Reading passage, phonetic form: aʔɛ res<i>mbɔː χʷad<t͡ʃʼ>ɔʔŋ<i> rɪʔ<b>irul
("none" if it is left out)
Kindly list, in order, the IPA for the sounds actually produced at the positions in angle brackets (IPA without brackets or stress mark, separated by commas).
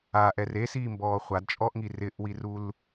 iː, t͡ʃʼ, i, w